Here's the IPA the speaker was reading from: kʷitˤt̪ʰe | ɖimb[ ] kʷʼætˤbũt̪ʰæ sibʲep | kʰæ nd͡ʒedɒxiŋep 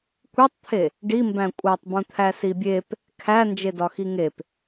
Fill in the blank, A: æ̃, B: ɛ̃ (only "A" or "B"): A